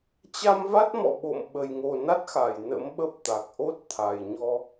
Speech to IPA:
t͡ɕa˧mva˦˥t̚mɔ̰˧˨ ɓo̰˧˨m ɓə˨˩jŋo˨˩ na˦˥t̚xa˧˩j nə̰˧˥mɓə˦˥p̚t̪a˨˩k̚ ʔo˦˥t̚t̪ʰa˨˩jɲɔ˧

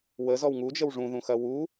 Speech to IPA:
wəzɔw ŋud͡ʒəw ʐũðũxɐ wu

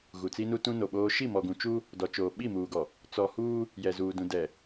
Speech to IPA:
ɣu˨t͡si˦nu˦ tũ˦no˨ɓoː˦ ʃi˦˨mɔ˨ɡũ˨ t͡ʃu˦ | dɔ˨t͡ʃoː˨ ɓi˦˨muː˨ɡɔ˨ | t͡sɔ˨huː˦ | jɛ˨zuː˨dũ˨ dɛ˨

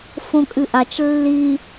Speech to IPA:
fõkʼɨʔat͡ʃ lːi

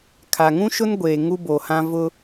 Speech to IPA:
kʰa˨ŋũ˦ʃʊ˦n ɡʷeː˨ ŋu˦bo˨hã˦ vʊ˦

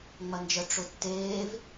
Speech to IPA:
ŋ͡mɐnd͡ʒə ʈ͡ʂʊtːeːv

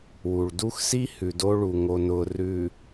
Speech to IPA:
wu˨ɭdu˦xsi˦ hʉ˨do˦ɭu˨ ŋo˨nʊː˨ rʉ˨

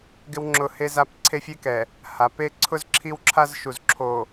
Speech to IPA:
ɡɪ˦wŋ͡ǁʊ˦˨he˦za˦p ǀʰe˦fʲe˦kɛ˨ | ha˨pe˦ ǀʰʊ˦z ǁʰi˦wǁʰa˦zʃu˨zǁʰo˨

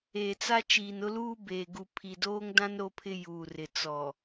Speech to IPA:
eː˨t͡sa˦ t͡ʃiː˨nʊ˦luː˦beː˨ ɡu˨pʰi˨doː˦ŋdã˦n ɾo˦pʰɪ˦juː˨rɪ˨ t͡sɔ˨

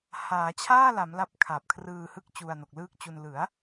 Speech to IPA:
haː˩˦t͡ɕʰaː˥˩la˩˦m la˦˥p̚kʰa˨˩p̚kʰrɯː˧hɯ˥˩k̚ t͡ɕu˧a̯no˨˩k̚lɯː˥˩k̚t͡ɕu˧n lɯ˩˦a̯

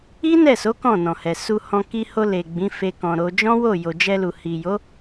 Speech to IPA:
i˦nɛ˦˨so˨˦ kɔ̃˦˨nɔ̃˨hɛ˨ su˧hɔ̃˧ ki˧ho˧ le˨ ɡ͡bĩ˨˦fe˧kɔ̃˨ɾo˧ d͡ʒɔ̃˦wo˦˨ jo˨d͡ʒɛ˧ lu˨hi˨jo˨˦

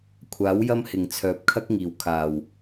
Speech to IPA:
kʷʰaː˨˥wjɐ˥mhɪ˨˩ŋ t͡sʰœː˨˥p̚ kʰɐ˥k̚ŋiː˨˩w kʰaː˨˩w

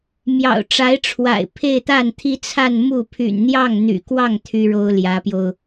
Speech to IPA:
mjɑ̰˨˩ʊ̯ʈ͡ʂa˧˥ɪ̯ʈ͡ʂʰwa̰˨˩ɪ̯ pʰe˥˧ɪ̯t̪a˥˩nt̪ʰi˥t͡sʰa˥˧n mu˥˩ pʰy̰˨˩nn̪jɑ˥˩ŋn̪y̰˨˩kwɑ˥˩ŋ t̪ʰy˥ɻo˥ʊ̯ljä˧˥pjo˧ʊ̯

